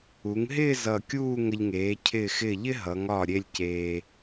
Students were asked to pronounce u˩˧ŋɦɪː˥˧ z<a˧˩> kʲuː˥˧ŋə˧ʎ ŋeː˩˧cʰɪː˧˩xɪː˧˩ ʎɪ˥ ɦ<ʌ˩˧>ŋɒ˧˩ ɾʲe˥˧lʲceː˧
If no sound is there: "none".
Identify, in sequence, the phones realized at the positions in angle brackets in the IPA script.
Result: ʌ˧˩, ʌ˩˧

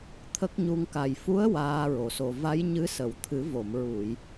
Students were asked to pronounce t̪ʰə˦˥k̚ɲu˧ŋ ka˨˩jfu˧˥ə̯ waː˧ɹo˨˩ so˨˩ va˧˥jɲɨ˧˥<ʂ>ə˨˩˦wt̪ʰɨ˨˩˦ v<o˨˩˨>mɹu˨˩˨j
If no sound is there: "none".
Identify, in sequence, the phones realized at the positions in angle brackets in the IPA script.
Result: s, o˨˩˨

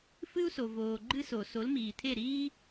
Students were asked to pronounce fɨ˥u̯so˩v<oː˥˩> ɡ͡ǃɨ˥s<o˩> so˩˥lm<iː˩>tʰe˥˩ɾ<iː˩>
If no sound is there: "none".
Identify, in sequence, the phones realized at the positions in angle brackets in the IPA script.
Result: oː˩, o˩, iː˩, iː˥

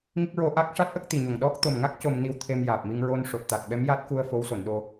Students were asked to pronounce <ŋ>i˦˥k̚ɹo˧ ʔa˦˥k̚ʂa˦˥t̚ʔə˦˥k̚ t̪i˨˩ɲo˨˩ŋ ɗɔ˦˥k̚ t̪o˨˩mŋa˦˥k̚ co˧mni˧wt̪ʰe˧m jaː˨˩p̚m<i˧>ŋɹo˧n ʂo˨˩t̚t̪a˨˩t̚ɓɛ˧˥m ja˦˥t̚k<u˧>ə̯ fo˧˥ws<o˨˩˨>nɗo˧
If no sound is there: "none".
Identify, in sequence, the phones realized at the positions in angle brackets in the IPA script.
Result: ŋ, i˧, u˧, o˨˩˨

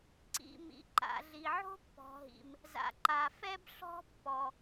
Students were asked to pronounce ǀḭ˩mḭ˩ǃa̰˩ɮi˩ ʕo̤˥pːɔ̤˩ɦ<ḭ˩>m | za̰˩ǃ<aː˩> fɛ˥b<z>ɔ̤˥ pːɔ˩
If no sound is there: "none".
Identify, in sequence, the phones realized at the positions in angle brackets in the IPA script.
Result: ḭ˩, a˩, ɬ

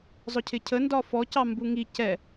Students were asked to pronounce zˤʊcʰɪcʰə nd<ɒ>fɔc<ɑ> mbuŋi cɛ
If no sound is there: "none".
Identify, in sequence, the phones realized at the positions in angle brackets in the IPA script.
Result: ɒ, ɑ

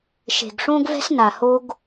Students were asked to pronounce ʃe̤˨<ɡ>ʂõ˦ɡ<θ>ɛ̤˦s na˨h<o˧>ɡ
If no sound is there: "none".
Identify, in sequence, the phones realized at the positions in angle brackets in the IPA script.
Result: ɡ, v, o˧

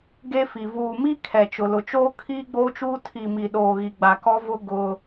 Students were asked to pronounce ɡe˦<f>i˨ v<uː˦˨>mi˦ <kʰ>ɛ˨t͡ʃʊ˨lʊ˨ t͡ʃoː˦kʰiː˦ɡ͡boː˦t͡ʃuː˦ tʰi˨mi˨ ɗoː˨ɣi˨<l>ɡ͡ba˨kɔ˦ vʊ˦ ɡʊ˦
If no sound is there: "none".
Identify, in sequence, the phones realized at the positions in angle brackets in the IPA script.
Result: f, uː˨, kʰ, none

